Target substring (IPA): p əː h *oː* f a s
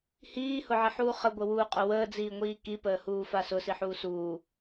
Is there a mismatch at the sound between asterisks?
yes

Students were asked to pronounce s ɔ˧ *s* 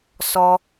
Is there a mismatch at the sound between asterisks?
yes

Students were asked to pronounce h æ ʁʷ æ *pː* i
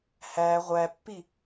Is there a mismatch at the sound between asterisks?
no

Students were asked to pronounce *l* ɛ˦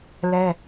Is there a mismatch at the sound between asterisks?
no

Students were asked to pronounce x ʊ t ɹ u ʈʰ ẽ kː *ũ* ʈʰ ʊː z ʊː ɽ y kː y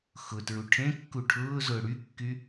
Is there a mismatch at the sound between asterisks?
yes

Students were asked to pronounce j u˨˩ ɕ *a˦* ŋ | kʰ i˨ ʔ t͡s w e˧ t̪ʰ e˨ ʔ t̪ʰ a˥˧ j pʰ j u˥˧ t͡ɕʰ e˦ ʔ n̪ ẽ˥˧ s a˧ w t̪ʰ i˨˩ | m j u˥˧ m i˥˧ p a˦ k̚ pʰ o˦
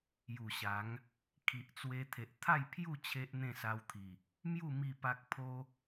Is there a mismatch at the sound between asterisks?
yes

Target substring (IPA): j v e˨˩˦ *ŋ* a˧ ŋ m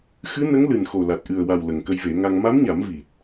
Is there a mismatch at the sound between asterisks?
no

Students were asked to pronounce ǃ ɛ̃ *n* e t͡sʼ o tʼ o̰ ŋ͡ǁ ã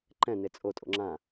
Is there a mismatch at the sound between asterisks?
no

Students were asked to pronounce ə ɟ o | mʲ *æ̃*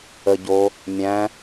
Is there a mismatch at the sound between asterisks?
no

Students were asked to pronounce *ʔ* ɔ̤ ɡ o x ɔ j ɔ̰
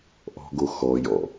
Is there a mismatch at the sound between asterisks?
no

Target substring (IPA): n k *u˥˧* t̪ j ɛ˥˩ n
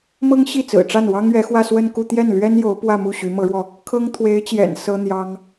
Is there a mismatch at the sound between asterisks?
no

